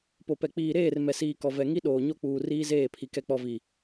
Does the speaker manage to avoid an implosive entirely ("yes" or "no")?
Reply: no